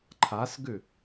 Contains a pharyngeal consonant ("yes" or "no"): no